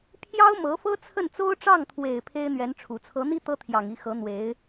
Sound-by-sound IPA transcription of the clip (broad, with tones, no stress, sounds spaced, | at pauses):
pʰ j ɑ˥ ʊ̯ m ɤ˧˥ f ɤ˥ t͡sʰ ə˥˩ n t͡s o˥ ʊ̯ ʈ͡ʂ ɑ˥˩ ŋ t̪ʰ w e˨˩ ɪ̯ pʰ e˥ ɪ̯ n̪ ɥ ɛ˧˥ n ʈ͡ʂʰ u˨˩ t͡sʰ ɤ˧˥ n̪ i˥ t̪ ɤ˥ t̪ʰ j ɑ˨˩ ŋ i˥˩ x ɤ˧˥ n̪ w e˧˥ ɪ̯